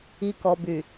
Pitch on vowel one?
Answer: low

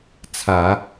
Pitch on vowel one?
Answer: low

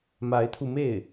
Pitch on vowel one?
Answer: rising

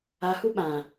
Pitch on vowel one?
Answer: low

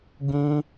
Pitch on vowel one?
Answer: high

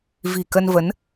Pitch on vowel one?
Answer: low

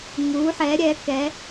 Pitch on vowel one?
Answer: rising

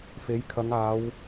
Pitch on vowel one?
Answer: rising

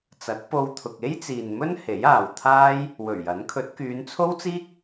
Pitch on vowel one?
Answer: rising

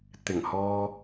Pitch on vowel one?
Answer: low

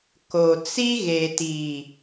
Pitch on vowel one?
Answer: low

